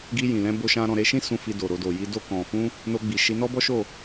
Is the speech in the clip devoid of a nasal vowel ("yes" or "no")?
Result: no